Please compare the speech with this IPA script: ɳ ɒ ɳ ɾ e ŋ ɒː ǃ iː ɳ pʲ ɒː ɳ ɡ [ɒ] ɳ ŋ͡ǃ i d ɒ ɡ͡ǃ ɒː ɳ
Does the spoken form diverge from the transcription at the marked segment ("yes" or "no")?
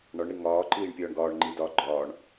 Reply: yes